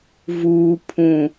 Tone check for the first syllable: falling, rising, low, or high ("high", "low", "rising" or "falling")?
low